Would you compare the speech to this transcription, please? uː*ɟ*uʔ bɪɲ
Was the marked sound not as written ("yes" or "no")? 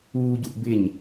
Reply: no